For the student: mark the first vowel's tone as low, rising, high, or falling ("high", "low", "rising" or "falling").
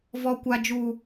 high